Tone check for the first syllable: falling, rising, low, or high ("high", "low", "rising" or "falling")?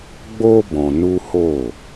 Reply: high